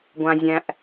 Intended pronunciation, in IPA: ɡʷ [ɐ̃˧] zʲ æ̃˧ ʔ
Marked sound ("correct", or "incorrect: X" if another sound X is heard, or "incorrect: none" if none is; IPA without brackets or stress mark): incorrect: ã˧